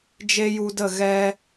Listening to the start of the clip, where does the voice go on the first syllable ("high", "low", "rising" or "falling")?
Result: high